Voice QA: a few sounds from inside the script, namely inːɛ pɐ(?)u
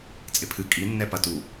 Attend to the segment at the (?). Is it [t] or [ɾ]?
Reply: t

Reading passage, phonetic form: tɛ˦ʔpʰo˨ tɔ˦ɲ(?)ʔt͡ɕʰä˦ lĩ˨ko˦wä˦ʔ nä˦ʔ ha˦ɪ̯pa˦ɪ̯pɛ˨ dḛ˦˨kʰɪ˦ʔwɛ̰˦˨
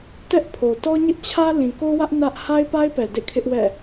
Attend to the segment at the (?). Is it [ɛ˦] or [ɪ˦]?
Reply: ɪ˦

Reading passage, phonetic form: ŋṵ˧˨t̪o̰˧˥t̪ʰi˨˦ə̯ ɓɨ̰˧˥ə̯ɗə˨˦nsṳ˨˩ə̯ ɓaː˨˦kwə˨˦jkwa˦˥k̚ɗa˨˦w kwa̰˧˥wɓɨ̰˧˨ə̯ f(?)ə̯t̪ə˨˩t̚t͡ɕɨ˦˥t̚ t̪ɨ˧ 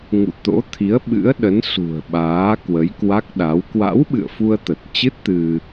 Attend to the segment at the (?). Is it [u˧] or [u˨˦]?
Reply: u˧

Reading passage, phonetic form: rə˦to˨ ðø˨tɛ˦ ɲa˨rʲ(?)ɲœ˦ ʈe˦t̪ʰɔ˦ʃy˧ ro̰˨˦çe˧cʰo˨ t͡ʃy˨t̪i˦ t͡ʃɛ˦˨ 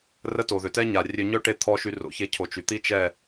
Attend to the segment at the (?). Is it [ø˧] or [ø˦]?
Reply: ø˧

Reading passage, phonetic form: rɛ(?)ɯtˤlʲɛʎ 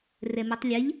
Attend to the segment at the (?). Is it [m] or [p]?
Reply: m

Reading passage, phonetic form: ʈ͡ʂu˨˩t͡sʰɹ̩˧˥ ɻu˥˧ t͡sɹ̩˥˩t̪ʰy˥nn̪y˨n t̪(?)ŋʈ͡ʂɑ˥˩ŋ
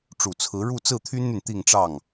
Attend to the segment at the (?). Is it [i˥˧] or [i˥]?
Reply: i˥˧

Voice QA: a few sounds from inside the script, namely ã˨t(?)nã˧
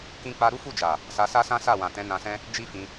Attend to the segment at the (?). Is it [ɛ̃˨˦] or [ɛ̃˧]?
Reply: ɛ̃˨˦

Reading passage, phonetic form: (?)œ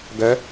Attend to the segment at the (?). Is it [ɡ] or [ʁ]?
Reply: ɡ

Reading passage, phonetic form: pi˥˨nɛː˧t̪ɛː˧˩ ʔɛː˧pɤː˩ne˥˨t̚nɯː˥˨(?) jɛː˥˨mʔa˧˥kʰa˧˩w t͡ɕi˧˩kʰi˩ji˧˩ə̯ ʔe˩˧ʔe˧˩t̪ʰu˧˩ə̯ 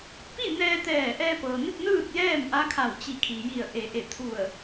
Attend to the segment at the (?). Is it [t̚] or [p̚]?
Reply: t̚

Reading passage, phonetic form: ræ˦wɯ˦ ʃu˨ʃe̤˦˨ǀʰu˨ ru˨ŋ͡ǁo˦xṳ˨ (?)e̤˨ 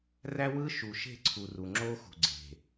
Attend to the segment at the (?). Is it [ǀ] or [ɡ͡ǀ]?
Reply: ɡ͡ǀ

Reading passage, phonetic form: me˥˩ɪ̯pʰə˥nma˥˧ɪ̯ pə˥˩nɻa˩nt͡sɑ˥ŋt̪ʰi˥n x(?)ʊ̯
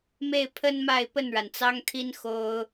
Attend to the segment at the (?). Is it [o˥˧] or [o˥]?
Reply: o˥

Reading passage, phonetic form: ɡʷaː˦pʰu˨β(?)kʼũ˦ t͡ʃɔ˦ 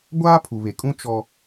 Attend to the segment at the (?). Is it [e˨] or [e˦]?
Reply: e˨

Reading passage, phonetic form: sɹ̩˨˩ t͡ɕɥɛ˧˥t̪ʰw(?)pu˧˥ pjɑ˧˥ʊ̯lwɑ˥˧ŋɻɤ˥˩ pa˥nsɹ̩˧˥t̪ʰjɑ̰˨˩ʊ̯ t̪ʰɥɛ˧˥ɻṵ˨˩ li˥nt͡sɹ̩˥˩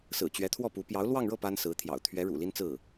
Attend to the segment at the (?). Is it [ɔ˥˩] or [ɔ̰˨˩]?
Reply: ɔ˥˩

